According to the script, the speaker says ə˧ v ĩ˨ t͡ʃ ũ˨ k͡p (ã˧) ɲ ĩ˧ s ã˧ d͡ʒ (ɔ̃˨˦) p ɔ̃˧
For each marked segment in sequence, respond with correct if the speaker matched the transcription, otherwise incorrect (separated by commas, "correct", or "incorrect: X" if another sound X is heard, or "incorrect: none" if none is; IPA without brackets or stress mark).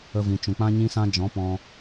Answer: correct, correct